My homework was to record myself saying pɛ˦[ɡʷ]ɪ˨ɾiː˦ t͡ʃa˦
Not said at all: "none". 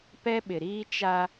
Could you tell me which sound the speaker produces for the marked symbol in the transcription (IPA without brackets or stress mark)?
ɓ